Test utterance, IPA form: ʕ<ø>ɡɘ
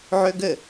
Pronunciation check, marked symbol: correct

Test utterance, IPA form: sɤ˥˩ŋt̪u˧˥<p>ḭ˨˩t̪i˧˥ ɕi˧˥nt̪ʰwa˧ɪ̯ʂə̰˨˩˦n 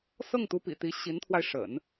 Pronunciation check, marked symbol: correct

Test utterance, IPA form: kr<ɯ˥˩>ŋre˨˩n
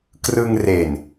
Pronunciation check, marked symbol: incorrect: ɯ˧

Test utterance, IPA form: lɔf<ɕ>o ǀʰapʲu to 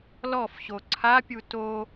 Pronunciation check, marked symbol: correct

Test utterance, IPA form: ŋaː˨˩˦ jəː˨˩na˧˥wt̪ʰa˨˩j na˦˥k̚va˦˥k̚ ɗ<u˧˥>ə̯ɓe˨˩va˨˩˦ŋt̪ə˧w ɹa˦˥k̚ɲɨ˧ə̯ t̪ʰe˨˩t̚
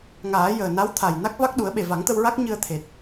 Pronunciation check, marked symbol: incorrect: u˨˩˦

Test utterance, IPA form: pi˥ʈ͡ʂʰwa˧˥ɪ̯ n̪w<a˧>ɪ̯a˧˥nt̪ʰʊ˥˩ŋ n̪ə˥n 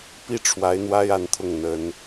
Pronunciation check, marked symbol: incorrect: a˥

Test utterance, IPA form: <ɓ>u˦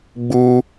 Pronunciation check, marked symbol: incorrect: ɡ͡b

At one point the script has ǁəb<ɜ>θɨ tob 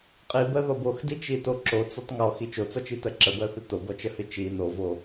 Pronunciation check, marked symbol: correct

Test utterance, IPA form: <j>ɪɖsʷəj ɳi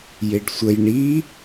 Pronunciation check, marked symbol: correct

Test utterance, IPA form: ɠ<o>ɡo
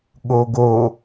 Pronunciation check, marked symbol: correct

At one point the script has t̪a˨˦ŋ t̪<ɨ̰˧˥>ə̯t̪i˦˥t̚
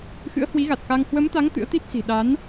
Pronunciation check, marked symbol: correct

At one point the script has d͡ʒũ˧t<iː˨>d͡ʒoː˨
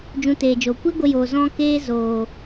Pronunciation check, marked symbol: incorrect: eː˨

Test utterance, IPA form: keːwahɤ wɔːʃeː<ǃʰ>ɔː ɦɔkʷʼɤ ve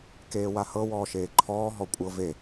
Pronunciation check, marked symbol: correct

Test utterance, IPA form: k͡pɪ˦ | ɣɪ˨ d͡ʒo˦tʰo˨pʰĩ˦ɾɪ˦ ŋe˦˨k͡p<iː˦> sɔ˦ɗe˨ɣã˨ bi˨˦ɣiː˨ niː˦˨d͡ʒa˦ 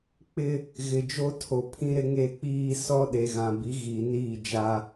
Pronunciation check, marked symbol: correct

